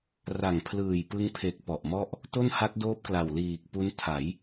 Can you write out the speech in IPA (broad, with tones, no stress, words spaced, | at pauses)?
ra˨˩ŋ pʰlɯː˨˩jpɯ˧ŋpʰe˨˩k̚ pɔ˨˩ʔmɔ˥˩ʔ | to˥˩nha˦˥t̚doː˦˥p̚kla˨˩w liː˨˩k̚ pu˦˥n tʰa˩˦j